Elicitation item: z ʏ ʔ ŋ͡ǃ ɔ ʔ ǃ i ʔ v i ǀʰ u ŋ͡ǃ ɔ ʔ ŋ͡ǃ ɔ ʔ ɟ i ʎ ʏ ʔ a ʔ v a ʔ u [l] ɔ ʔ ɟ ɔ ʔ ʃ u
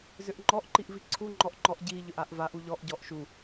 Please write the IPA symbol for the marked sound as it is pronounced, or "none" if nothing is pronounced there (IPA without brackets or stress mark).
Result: ʎ